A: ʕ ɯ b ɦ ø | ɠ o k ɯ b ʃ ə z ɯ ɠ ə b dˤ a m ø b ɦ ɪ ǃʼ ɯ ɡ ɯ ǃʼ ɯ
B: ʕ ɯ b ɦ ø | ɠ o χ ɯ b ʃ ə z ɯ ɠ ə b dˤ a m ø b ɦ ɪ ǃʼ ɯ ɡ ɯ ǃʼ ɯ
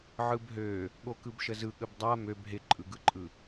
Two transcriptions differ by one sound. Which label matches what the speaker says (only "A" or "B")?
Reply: A